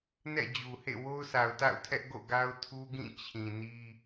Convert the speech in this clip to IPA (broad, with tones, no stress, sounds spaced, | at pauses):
n ɛ̰˦˨ d͡ʑ u˨ h ḛ˦˨ w o˦ ʊ̯ s a˨ ʊ̯ t a̰˦˨ ʊ̯ tʰ ɛ˦ ʔ ɡ o̰˦˨ ɡ a˦ ʊ̯ tʰ u˦ ɡ ĩ˦˨ t͡ɕʰ ĩ˨ n i˦